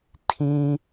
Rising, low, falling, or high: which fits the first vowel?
high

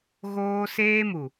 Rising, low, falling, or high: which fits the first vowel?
high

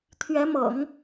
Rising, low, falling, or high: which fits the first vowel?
rising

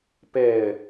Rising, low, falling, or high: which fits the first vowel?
falling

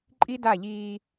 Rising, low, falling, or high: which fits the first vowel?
high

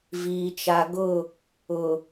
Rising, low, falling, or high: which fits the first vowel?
low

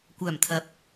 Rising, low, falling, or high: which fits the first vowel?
low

